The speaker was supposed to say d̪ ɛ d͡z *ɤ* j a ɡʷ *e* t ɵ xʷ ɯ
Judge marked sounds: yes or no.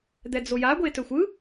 no, yes

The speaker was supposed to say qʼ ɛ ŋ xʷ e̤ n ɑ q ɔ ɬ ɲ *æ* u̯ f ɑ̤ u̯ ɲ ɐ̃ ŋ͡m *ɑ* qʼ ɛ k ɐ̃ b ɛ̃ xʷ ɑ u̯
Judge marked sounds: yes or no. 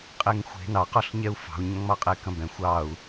no, yes

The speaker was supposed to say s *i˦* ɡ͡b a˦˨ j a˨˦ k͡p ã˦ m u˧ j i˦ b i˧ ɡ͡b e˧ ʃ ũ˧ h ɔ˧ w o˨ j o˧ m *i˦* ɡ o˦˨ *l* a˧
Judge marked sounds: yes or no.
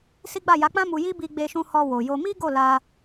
yes, yes, yes

